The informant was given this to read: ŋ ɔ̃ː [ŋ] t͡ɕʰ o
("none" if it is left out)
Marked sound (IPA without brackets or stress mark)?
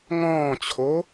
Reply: none